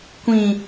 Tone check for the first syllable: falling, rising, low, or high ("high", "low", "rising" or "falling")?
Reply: low